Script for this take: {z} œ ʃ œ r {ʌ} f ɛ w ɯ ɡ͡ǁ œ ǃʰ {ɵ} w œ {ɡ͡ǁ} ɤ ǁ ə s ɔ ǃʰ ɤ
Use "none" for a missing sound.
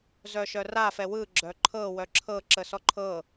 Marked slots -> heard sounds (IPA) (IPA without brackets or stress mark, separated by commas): z, a, ɤ, ǁʰ